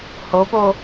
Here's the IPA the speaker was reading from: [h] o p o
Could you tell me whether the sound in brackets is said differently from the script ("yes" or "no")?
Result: no